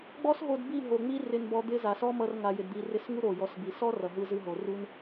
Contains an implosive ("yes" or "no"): no